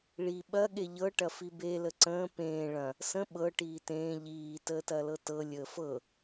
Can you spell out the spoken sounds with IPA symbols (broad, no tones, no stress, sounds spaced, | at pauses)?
ɭ i ɓ ɐ ɠ e ʎ ɤ ʈ ɐ f i b e l ə ǀ ə̃ː p ẽː ɭ ɐ̃ | s ə̃ ɓ ɤ ʈ iː t ẽː ʎ iː t əː t ɐ l ɤ t ɤ lʲ əː f ɤ